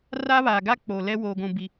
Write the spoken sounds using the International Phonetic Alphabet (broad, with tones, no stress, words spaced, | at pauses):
raː˦βaː˨ ɡa˦k͡poː˨lɛ˦ woː˨ɡʷũ˨bi˨